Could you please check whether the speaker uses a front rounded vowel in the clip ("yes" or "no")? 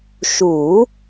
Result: no